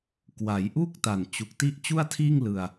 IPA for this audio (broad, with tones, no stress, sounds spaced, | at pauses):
k w a˩˦ j ʔ uː˥˩ k̚ t a˨˩ n t͡ɕ u˨˩ k̚ t i˥˩ ʔ t͡ɕ u˥˩ a̯ tʰ iː˥˩ ŋ l ɯ˧ a̯